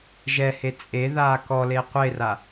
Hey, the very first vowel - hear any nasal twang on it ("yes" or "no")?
no